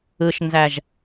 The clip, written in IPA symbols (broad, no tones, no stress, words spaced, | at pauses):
ɯʃnzæʒ